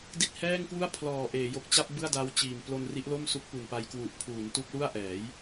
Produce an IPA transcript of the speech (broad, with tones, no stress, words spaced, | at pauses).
di˥˩t̚ hɛː˥˩ŋkwu˥˩a̯pʰlɔː˨˩ ʔeː˩˦jo˨˩k̚t͡ɕa˥˩p̚ bɯ˥˩a̯da˦˥w t͡ɕiː˨˩m plo˧nri˦˥ʔlo˥˩m su˦˥k̚pu˨˩npa˦˥jkwu˨˩ʔ pʰuː˩˦ntu˦˥k̚lu˥˩a̯ ʔɛː˩˦j